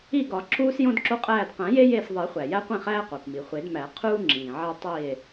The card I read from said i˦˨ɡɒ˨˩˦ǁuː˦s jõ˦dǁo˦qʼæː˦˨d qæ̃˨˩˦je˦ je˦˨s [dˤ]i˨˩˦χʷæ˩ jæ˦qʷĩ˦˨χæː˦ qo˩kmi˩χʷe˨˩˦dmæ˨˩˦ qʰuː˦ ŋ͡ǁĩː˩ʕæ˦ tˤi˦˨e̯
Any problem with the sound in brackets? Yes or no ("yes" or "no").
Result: yes